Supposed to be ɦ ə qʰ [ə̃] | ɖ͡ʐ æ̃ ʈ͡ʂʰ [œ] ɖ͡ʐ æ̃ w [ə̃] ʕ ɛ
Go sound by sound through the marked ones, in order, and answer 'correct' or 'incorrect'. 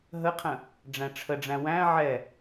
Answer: correct, incorrect, incorrect

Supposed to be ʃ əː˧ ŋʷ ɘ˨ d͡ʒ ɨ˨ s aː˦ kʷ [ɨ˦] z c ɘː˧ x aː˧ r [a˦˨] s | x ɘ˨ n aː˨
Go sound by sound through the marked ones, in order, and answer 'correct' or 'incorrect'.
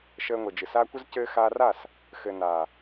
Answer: incorrect, correct

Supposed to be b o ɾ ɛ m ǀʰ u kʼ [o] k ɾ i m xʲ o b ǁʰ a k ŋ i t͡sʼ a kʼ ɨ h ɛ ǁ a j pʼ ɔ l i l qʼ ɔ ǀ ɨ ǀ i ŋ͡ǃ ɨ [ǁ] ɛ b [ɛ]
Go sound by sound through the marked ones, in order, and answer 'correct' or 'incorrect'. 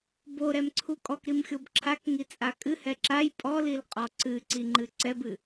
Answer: incorrect, incorrect, incorrect

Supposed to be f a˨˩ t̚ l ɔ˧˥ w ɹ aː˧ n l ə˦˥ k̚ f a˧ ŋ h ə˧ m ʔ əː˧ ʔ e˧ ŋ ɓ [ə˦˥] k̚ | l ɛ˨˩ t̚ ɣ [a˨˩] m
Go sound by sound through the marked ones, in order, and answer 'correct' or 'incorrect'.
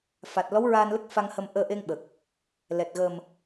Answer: incorrect, incorrect

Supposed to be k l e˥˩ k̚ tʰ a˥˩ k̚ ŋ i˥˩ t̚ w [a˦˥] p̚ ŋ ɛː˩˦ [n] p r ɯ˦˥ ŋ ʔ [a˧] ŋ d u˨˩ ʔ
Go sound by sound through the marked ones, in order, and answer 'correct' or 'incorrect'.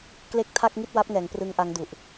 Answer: correct, incorrect, incorrect

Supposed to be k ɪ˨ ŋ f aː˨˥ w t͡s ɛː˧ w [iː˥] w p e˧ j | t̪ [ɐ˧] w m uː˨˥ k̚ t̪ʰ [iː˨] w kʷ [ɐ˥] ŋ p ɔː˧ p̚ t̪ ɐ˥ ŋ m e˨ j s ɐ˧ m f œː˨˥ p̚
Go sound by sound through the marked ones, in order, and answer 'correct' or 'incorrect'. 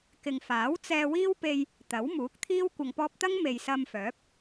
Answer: correct, incorrect, incorrect, incorrect

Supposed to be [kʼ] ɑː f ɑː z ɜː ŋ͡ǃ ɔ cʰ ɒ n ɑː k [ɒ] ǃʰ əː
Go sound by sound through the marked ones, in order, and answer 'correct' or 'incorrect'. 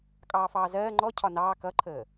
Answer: correct, incorrect

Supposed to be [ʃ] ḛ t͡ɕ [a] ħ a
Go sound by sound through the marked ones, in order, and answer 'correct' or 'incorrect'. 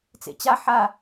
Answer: incorrect, correct

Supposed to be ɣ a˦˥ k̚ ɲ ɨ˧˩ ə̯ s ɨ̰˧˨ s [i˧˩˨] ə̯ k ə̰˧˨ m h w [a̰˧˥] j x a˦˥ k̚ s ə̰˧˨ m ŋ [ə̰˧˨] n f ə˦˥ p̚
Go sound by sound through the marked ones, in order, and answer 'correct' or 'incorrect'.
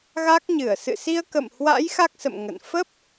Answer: incorrect, correct, correct

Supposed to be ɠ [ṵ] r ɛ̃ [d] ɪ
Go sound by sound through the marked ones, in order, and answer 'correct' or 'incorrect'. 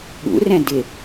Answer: correct, correct

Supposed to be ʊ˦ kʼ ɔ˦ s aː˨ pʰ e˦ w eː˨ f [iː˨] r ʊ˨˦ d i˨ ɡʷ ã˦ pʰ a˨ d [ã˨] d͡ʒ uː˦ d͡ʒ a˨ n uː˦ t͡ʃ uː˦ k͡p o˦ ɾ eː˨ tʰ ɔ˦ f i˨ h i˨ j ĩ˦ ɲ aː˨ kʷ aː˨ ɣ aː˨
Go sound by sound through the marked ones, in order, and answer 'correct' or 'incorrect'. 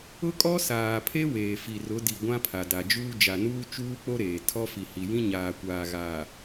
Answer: incorrect, incorrect

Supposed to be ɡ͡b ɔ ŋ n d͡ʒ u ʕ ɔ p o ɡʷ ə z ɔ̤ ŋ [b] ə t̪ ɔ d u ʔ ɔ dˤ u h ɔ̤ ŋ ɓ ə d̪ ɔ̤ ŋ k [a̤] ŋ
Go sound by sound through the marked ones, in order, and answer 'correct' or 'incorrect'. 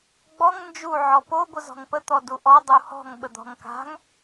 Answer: incorrect, correct

